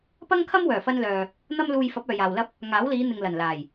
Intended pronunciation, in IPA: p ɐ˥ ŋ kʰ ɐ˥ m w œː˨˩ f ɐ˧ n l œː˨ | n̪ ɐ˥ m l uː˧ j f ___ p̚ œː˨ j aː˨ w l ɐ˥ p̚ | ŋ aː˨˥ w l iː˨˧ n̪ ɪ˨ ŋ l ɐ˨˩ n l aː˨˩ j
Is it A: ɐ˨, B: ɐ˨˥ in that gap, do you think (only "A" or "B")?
B